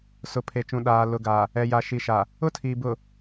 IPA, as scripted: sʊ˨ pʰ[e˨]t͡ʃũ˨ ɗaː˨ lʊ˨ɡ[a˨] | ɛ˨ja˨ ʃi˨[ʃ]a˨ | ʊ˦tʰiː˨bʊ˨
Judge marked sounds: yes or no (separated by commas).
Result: yes, yes, yes